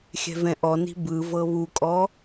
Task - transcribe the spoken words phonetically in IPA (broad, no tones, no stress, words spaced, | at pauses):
xʲɛ̤vɛ̃ʔɔni̤ bɯ vɤβukʼɔ